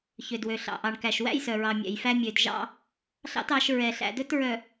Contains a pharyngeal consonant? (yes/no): no